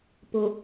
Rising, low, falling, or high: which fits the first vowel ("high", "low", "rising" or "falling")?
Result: low